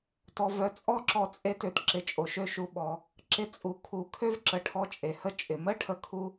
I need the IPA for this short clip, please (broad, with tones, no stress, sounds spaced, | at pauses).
t ɔ˩ v œ˩ t͡sʼ ɔ˥ ǁ ɔ˧ t͡sʼ e˧ t ø˩ t ǁ ɪ˩ t͡ʃʼ o˩ ʃ ø˧ ʃ u˩ ɓ ɔ˩ | ǁ ɪ˧ t͡sʼ u˩ kʰ u˩ kʰ ø˥ v ǁ ə˩ ʈʰ ɔ˧ t͡ʃʼ e˩ h ə˥ t͡ʃʼ ɪ˩ m ə˥ ʈʰ ə˥ kʰ u˥